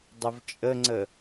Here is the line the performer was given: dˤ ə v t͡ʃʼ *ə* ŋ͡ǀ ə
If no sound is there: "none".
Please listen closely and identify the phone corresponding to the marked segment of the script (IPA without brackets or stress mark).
ə